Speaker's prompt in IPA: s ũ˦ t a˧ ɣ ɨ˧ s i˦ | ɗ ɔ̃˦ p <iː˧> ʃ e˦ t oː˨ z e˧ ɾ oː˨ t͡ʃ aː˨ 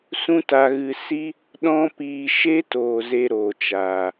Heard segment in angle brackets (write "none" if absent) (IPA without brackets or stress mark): iː˧